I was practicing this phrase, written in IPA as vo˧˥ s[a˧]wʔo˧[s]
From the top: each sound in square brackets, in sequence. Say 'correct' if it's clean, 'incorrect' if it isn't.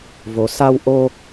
correct, incorrect

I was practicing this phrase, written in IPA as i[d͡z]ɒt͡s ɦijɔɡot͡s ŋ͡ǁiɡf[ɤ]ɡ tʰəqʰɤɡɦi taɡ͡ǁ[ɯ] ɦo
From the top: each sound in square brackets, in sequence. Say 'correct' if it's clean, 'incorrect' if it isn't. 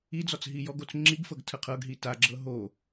correct, correct, incorrect

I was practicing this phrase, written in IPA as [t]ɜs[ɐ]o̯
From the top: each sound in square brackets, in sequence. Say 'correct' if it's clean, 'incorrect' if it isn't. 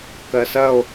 incorrect, correct

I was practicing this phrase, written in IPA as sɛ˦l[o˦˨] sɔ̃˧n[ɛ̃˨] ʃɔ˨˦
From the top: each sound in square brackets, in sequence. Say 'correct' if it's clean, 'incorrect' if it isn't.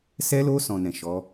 incorrect, correct

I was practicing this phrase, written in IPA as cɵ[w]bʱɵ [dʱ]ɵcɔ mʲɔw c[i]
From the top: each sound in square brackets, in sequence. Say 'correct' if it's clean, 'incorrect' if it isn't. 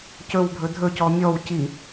correct, correct, correct

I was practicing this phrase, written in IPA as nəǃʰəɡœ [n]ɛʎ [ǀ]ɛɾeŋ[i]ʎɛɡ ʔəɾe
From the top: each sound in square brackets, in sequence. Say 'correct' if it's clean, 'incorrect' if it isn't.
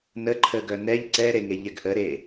correct, correct, incorrect

